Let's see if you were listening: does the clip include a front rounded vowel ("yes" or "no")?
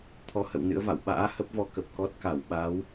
no